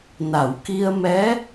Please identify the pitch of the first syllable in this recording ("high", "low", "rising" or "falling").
low